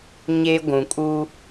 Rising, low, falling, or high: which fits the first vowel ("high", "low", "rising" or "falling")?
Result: high